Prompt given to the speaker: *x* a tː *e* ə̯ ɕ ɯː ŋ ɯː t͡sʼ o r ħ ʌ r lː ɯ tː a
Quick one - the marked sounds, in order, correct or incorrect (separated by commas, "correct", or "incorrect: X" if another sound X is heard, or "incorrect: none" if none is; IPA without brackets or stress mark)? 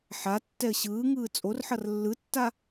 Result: incorrect: ħ, incorrect: ɛ